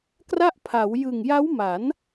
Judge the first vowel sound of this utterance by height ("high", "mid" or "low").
low